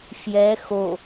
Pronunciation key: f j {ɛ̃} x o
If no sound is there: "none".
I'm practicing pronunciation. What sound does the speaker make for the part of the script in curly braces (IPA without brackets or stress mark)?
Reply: ɛ